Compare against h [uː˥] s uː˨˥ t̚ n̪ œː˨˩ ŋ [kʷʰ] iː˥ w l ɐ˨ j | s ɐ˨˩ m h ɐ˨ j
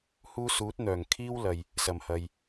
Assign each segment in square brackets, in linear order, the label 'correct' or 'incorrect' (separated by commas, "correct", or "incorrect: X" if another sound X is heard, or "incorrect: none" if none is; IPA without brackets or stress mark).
correct, incorrect: kʰ